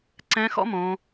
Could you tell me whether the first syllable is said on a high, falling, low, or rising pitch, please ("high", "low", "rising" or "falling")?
rising